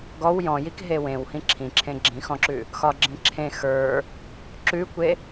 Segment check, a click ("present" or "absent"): present